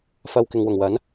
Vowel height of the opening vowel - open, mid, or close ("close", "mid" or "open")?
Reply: open